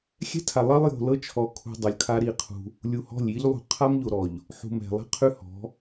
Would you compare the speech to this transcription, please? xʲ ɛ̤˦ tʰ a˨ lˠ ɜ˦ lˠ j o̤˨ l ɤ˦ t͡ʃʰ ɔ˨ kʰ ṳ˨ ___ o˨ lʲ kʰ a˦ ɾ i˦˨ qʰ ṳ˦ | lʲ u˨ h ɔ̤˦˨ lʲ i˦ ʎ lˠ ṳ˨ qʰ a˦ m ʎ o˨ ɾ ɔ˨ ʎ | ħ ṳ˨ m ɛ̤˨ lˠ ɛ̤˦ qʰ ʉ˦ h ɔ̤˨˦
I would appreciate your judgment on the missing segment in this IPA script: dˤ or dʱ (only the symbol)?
dˤ